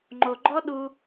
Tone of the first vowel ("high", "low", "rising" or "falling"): low